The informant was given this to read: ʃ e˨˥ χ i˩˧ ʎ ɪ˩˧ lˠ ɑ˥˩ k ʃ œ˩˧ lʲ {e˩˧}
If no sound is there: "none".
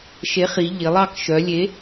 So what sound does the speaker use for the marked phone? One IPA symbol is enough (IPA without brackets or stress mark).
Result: e˨˥